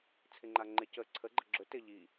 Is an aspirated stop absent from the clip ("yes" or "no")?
no